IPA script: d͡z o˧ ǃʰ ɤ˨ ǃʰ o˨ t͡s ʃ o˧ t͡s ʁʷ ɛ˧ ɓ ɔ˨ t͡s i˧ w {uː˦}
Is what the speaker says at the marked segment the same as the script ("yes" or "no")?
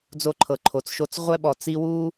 yes